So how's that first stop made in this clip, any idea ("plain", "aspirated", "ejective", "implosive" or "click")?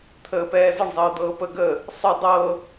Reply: aspirated